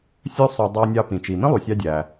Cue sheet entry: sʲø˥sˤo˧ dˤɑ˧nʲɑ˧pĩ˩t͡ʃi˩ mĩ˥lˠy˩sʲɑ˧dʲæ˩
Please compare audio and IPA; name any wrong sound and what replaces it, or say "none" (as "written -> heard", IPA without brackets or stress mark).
none